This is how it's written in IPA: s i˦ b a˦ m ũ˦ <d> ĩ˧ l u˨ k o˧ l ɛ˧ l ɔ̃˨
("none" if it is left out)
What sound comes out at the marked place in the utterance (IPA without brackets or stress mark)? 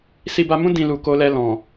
d